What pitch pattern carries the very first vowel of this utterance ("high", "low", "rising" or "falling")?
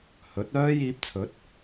rising